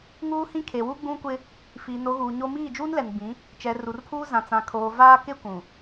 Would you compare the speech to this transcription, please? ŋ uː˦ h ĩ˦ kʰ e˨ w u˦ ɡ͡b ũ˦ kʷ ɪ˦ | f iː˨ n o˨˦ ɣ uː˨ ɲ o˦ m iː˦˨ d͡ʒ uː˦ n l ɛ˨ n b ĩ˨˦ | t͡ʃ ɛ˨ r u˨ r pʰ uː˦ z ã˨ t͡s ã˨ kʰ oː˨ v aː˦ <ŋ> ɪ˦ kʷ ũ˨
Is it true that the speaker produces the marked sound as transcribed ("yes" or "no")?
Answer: no